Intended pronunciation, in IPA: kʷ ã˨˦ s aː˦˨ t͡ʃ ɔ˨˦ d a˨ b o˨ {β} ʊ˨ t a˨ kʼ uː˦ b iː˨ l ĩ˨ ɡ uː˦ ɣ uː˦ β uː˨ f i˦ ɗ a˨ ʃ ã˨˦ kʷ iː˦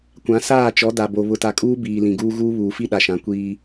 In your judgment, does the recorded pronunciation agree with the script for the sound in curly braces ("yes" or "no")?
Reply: yes